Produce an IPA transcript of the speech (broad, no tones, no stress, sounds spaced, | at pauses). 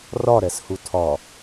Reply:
r ɒ ɾ ɛ s h u tʰ ɒ